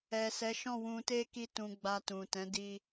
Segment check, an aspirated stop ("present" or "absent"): absent